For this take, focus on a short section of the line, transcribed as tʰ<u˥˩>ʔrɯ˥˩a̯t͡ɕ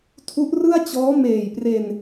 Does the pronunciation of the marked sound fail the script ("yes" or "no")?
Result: yes